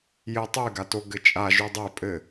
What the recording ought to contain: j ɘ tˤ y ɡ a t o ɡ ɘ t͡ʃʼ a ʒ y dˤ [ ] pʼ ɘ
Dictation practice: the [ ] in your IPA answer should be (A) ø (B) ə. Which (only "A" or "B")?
A